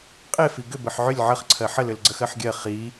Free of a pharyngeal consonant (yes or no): no